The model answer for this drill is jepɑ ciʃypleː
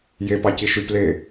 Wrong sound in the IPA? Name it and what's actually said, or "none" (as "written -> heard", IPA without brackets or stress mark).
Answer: none